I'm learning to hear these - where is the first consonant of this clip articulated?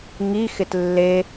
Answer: velum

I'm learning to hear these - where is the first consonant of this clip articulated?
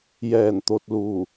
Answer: palate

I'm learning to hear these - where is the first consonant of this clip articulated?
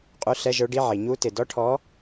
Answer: uvula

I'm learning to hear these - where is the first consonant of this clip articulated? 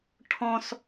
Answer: retroflex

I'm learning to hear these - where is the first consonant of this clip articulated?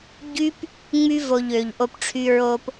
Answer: palate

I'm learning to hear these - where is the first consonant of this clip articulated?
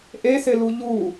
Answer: throat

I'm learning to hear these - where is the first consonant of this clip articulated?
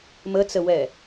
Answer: lips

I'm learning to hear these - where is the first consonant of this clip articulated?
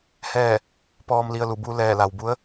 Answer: throat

